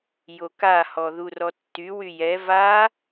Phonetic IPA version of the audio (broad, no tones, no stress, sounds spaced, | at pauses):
j o k a h ɔ ð u r ɔ tː y w y j ɛ v a